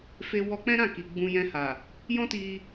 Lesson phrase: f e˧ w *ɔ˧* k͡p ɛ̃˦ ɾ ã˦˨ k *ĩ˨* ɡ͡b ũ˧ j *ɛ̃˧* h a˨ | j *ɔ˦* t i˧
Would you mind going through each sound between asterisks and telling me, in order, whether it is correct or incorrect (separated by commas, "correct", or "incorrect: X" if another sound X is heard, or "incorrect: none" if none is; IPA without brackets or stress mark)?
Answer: correct, incorrect: i˨, correct, incorrect: ɔ̃˦